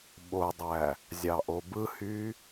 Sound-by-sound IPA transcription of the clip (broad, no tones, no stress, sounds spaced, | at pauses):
ɓ o dˤ æ | zʲ ɑ ʔ o b ɯ h y